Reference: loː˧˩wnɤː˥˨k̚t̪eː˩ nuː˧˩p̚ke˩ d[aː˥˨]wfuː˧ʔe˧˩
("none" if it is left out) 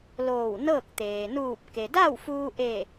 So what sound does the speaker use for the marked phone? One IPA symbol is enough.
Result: a˥˨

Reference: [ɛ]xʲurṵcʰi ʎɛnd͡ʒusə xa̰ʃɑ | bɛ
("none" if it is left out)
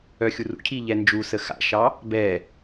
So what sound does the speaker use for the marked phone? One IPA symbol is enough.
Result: œ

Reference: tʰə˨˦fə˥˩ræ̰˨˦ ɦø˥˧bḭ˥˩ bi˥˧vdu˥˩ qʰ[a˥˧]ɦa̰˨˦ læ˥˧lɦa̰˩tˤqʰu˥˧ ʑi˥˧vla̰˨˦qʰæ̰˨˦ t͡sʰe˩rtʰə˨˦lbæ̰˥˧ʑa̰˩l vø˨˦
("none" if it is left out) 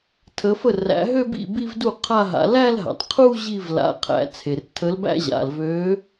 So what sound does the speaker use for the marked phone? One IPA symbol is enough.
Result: a˥˧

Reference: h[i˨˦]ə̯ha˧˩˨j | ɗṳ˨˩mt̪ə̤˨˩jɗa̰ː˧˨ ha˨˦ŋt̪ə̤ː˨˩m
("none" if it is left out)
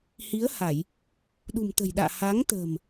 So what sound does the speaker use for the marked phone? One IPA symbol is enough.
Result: i˨˦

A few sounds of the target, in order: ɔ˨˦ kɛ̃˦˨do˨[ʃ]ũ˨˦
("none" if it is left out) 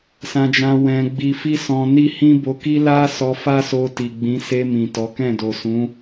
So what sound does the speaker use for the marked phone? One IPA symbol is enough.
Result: s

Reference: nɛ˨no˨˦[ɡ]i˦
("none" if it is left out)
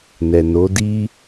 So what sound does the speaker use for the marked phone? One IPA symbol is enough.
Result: d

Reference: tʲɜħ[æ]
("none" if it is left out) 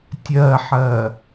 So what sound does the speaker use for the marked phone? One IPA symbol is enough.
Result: ɜ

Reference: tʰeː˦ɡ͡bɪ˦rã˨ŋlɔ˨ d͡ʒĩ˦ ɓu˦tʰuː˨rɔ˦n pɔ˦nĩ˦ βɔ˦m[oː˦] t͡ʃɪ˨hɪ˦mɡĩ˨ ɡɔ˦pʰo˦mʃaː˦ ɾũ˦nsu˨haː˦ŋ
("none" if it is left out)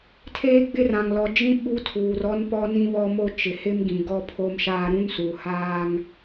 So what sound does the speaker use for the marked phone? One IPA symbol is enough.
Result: o˦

